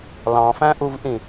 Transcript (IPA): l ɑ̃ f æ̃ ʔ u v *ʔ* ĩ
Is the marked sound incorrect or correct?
correct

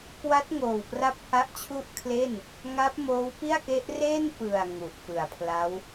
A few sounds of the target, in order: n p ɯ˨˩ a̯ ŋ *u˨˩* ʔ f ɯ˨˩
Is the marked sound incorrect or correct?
correct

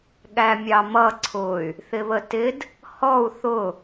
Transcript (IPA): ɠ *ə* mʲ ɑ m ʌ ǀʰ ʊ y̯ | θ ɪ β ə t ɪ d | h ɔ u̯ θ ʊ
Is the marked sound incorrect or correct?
incorrect: æ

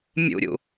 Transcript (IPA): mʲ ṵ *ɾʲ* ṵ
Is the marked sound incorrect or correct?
correct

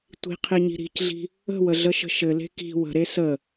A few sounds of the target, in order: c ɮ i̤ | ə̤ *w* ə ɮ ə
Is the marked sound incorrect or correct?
correct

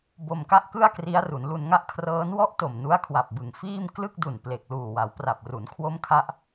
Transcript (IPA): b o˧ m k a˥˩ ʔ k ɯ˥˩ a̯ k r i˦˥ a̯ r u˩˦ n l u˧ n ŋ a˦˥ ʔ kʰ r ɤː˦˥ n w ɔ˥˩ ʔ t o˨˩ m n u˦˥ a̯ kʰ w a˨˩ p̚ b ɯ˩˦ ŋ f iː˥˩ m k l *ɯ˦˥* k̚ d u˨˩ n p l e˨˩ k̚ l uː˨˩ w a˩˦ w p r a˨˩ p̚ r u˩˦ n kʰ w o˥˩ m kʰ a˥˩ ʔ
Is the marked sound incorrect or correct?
incorrect: ɯ˥˩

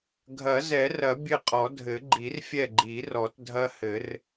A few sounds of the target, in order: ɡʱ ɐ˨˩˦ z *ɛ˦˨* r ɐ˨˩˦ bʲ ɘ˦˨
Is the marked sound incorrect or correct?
incorrect: ɛ˨˩˦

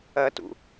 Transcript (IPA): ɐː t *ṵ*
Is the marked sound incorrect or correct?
correct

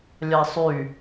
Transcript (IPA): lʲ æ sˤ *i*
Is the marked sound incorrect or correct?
incorrect: y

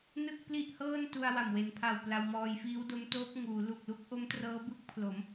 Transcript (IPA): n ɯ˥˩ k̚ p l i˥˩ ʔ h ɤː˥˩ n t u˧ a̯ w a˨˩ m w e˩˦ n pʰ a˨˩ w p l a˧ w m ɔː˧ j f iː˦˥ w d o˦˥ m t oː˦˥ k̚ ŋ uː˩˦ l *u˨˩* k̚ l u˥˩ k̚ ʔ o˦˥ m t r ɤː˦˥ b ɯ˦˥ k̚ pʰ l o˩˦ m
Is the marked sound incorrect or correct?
correct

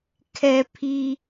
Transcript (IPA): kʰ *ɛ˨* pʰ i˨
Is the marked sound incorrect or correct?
correct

